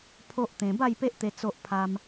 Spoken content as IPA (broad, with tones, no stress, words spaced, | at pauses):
pʰo˦ʔt̪ẽ˧ ba˥˧jpe˦ʔt̪e˧ t͡so˦ʔpʰa˦m